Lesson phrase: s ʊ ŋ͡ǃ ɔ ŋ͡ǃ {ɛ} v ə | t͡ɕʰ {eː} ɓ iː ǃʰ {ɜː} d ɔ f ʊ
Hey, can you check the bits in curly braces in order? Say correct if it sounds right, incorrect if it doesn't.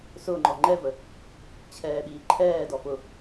correct, incorrect: ɛː, incorrect: ɛː

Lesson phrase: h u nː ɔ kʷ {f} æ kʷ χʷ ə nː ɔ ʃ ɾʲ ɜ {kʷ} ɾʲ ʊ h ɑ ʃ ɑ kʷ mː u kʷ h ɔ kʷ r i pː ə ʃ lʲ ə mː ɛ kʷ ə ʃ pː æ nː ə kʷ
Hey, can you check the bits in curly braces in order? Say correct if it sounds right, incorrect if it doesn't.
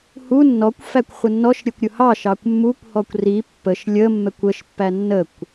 correct, correct

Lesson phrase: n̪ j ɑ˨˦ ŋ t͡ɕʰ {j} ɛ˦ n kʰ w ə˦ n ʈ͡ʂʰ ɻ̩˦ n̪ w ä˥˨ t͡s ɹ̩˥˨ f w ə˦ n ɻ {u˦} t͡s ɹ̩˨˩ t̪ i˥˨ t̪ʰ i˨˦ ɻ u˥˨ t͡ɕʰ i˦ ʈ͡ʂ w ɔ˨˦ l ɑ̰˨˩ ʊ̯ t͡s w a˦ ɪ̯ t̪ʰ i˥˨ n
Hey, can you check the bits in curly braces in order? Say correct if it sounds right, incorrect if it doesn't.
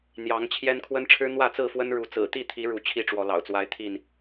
correct, incorrect: u˨˦

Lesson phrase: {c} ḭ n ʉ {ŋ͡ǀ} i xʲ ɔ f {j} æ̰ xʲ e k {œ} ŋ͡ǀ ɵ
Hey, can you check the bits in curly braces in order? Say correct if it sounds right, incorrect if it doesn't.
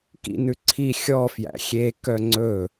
incorrect: k, incorrect: ǀʰ, correct, correct

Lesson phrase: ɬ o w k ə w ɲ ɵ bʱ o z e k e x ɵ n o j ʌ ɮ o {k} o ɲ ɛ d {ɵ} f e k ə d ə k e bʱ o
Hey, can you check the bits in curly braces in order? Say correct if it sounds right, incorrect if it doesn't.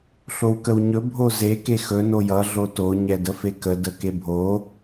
incorrect: t, incorrect: ə

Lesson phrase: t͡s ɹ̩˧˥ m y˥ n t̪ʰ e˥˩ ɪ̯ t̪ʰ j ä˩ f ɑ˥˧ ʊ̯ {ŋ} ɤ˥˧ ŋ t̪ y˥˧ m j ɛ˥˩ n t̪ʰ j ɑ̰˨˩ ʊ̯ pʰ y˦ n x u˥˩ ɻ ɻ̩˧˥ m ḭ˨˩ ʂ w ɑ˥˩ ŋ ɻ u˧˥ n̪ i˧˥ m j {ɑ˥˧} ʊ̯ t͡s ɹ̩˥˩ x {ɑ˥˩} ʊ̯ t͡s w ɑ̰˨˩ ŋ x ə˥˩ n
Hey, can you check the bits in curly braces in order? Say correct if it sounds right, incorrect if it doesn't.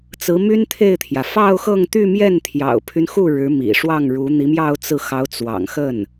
incorrect: x, correct, incorrect: ɑ˧˥

